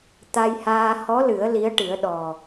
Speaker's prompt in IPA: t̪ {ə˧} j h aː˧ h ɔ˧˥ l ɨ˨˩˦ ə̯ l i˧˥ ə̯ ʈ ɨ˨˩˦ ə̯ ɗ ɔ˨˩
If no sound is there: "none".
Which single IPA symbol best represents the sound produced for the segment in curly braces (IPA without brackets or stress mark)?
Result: a˧